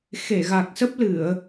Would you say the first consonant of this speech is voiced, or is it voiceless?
voiceless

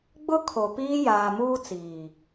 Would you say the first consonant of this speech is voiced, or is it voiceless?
voiced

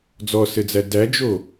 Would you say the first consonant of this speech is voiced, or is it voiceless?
voiced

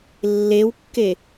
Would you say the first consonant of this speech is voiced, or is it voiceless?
voiced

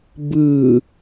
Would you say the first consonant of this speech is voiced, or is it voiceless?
voiced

